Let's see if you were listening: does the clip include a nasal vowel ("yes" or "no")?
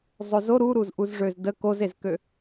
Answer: no